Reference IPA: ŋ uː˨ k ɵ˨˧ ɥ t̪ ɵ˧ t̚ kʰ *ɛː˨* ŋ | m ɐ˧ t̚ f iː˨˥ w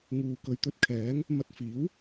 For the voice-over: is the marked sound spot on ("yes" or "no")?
no